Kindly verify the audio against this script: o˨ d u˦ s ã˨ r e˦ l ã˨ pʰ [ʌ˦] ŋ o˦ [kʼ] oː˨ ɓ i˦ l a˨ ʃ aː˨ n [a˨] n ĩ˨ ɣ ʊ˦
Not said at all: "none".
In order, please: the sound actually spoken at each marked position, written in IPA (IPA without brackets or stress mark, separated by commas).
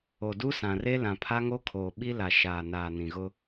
a˦, kʰ, aː˨